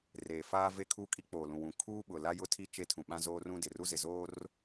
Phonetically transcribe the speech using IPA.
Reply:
r eː˨ f aː˦ v e˦ kʰ u˦ kʼ i˦ k͡p oː˨ l ũ˨ w ũ˨ kʰ uː˦ ɓ ʊ˨ l a˦ j ʊ˦ tʰ i˦ t͡ʃ e˦ tʰ ũ˨ ɓ ã˦ z oː˦ r ũ˦ d ɪ˨ r u˦ z ɪ˨ z oː˦ r

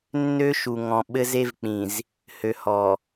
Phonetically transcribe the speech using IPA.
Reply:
nː ø˦ ʃ u˨ ŋ ɔ̃˨ ɓ ɘ˦ z e˦ v k͡p ĩ˨ z | h ø˨ h ɔ˨

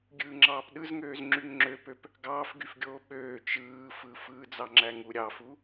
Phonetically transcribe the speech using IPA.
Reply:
ɡʲ ɯː ŋ͡ǁ ɑː p ɗ ɯ z ŋ øː z ŋ͡ǁ y ŋ ŋ͡ǁ ø p ø p | ɡ ɑː f ɡ y f ɡʲ oː ɓ øː t͡ʃ ɯː f ɯ f ɯː d͡z ɑ ŋ͡ǁ æ ŋ u ɾʲ ɑ f u

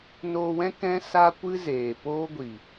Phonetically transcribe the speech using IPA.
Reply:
n oː˧ w ɛ̃˦ k ɛ̃˦ s a˦ kʷ ɨ˦ z eː˨ p oː˦ ɡʷ i˨

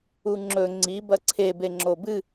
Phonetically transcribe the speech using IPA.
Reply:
u ŋ͡ǁ ɵ ŋ͡ǀ i b ɐ ǀʰ e b e ŋ͡ǁ o b ɨ

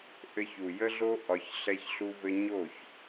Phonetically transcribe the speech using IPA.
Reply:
ʔ ɘ˧ ç u˨ j ə˦ ɮ o˦ ʔ ɒ˧ ç ɬ ɛ˦ ç ɬ u˦ v ɘ˦ ɲ o˦˨ ç

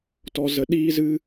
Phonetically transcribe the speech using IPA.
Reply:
t ɔ˧ z ə˧ ɗ iː˦ z ɨ˦

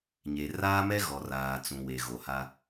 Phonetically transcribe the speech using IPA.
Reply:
ɲ e˨ r aː˦ m ɛ˦ ɣ ɔ˨ r aː˨ t͡s ũ˨ w e˨ ɣ o˨ h a˦

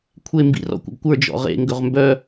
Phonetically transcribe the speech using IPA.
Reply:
kʷʰ e m b ḭ r ɔ̰ kʷ ə̰ ɡ kʷ ə˞ d͡ʒ ɔ̰ ʁ ḛ ŋ ɡ ɵ ʁ m b œ

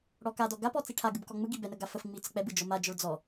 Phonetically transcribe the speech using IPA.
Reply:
ɽ ɔ k a d ɔ ɡ a p ɔ t͡s i ʈʰ a ɡ ɯ b k ɔ ŋ͡m ɯ ɡ i b ɛ n ə ɡ a f ə f ŋ͡m i t͡s ə k͡p ɛ b ɯ d͡ʒ ɔ m a d͡ʒ ɔ ɭ d͡z ɔ

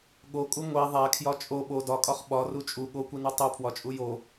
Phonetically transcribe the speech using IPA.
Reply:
ɠ o kʼ u ŋʷ e ðˤ æ kʰ j ɒ t͡ʃʼ o ɓ o d ɒ kʼ ɒ χ ɓ ɒ r u t͡ʃʼ u ɠ o kʷ i n u tˤ o pʰ w ɒ t͡ʃʼ u j o

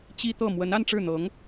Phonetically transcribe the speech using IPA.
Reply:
t͡ɕ i˥ t̪ ɤ˥˩ m w ə˧˥ n a˥˧ n ʈ͡ʂ ɻ̩˥˩ n̪ ɤ˧˥ ŋ

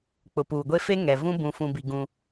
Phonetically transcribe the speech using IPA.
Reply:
k͡p ʊ˨ p uː˨ ɡʷ e˦ f e˦ ŋ ɛ˨ v ũ˦ b ũ˨ f ũ˨ b i˨ ɡ ũ˦

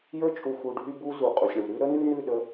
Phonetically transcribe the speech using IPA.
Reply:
j ə˞˦ t͡ʃʼ u˨ x u˨ ɖʱ y˦ b u˦ z u˨ qʼ u˨ sʲ ɳ u˨ ɾ ʉ˦ ɾ ə˦ n ʉ˦ n ʉ˦˨ ɗ ə˦

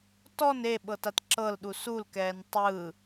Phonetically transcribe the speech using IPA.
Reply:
t ɔ n e ɓ ɤ t a t ǁ ɤ l ɗ u s u l k ɛː n tˤ ɯ

